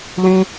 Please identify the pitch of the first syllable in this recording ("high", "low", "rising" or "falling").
high